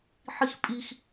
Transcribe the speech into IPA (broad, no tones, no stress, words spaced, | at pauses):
ħixpʼix